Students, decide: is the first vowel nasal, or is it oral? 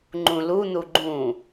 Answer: nasal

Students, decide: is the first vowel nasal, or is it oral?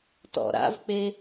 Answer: oral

